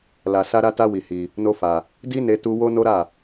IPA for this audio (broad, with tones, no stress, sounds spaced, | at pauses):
l a˧ s a˦ ɾ a˦ t a˦ w i˧ h i˧ | n o˦ f a˧ | d i˦ n e˦ t u˦ w o˦ n o˦ ɾ a˦˨